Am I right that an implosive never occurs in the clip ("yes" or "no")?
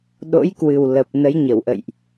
no